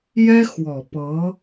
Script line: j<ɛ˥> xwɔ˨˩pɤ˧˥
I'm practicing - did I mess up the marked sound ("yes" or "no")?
no